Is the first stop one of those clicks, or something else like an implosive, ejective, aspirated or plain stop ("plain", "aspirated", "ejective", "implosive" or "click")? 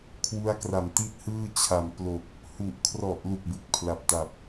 aspirated